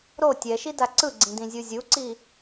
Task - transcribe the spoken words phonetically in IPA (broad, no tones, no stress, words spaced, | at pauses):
ɾo tʲɛʃida ǀɯɡ͡ǀĩdĩzʲu zʲuǀi